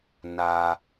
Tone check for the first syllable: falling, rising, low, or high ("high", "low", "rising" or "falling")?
low